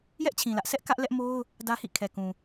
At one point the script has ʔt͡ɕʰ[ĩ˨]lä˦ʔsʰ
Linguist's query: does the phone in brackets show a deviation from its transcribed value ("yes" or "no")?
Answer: no